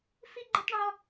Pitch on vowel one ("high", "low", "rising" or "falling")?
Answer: high